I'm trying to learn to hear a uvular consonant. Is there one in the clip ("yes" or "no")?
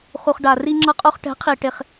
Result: yes